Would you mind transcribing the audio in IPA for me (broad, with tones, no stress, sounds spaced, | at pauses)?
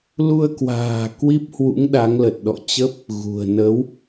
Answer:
l u˧ ə̯ k w a̤ː˨˩ k w i˦˥ p̚ h w ṵ˧˥ ŋ ɗ a˨˦ ŋ l ə˨˩ t̚ ɗ ɔ̰˧˨ t͡ɕ ə˦˥ p̚ | ɣ ṳ˨˩ ə̯ n ə˨˦ w